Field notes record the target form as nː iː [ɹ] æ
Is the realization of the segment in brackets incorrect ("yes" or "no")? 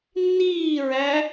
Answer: no